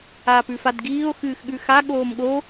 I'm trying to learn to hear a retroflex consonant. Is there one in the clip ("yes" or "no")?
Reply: no